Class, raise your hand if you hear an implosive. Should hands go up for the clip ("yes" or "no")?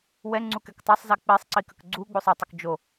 no